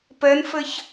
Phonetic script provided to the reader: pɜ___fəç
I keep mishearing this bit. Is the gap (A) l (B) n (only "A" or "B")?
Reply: B